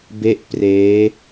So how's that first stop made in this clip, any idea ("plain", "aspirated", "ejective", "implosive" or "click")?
plain